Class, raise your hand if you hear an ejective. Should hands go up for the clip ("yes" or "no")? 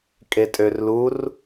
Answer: yes